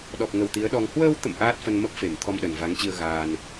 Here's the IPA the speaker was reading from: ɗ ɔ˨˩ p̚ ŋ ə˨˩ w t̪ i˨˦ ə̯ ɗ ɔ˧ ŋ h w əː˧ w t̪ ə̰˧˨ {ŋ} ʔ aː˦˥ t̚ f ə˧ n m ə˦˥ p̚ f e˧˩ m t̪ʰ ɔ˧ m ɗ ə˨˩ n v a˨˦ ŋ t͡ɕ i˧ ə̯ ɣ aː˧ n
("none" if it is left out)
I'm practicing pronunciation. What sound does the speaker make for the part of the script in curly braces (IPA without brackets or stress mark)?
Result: m